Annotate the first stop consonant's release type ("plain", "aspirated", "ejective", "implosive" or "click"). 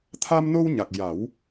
aspirated